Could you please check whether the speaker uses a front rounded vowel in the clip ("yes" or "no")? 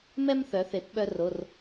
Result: yes